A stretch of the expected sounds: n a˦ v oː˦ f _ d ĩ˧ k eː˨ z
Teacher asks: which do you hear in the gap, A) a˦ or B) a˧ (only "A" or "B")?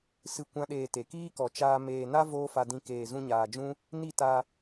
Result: B